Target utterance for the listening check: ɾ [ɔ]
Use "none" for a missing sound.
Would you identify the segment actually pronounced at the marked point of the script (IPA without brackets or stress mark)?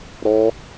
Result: ɔ